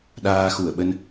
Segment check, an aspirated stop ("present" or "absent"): absent